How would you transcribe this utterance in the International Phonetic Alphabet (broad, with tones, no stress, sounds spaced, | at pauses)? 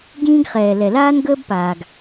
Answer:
ɟ ĩː˦ ɡ χ ɛː˨ l ɛ˨ l aː˦ n ɡ əː˦ b p aː˨ ɡ